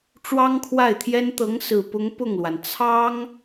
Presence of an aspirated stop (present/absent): present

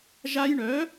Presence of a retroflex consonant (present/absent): present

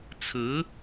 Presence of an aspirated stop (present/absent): present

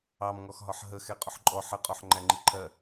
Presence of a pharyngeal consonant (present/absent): present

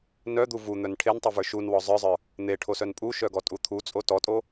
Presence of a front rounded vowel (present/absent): present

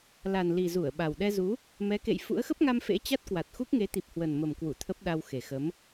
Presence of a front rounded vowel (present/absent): absent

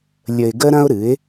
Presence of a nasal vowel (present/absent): present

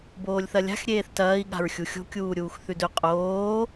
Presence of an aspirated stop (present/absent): absent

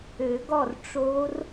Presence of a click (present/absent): absent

